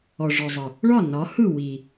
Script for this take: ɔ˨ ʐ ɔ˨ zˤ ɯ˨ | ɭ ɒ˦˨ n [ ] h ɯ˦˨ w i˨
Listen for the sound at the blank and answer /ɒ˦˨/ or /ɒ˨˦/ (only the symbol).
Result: ɒ˨˦